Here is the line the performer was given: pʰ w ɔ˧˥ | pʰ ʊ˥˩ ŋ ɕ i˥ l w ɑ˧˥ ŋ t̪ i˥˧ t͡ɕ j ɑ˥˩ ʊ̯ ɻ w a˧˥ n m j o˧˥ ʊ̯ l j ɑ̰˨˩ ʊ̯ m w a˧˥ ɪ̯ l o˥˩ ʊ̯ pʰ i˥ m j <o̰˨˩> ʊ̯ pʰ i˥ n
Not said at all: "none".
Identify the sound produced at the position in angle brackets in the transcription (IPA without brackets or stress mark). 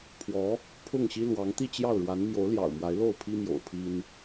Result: o̰˨˩